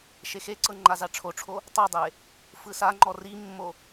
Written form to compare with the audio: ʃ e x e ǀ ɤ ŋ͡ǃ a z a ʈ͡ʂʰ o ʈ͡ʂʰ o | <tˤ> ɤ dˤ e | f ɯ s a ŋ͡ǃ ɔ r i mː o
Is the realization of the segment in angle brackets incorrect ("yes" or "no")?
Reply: no